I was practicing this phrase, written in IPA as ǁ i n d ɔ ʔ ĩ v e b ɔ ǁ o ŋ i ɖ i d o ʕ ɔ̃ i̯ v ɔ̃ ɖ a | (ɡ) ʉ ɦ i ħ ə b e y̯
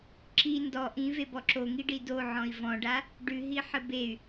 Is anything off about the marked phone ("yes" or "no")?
yes